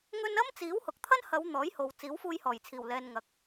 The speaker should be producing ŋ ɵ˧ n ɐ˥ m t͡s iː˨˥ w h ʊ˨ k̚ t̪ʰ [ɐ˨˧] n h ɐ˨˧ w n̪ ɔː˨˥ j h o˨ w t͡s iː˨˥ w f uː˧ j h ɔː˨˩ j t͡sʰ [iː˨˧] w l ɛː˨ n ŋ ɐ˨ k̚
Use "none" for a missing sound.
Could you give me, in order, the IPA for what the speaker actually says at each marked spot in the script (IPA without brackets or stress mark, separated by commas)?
ɐ˥, iː˨˩